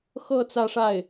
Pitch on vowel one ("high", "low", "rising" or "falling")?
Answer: falling